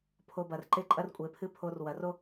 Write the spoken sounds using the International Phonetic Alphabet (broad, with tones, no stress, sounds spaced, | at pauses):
pʰ o˧ b ɐ˨ r ǃ e˦ ǃʼ ɐ˦ r kʷʼ e˨ pʰ ɨ˦ pʰ o˧ r w ɐ˨ r o˦